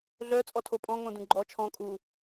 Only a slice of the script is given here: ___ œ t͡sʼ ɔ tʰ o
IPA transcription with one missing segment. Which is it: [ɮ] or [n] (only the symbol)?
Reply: ɮ